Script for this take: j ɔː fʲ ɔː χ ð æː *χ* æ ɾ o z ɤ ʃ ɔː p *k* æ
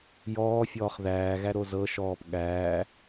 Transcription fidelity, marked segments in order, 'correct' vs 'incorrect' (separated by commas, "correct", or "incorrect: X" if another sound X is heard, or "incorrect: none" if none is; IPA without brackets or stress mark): incorrect: ɣ, incorrect: ɠ